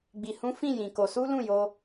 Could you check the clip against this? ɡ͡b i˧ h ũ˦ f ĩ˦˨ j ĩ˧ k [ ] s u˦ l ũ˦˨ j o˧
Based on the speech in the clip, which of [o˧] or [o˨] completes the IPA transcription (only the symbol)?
o˧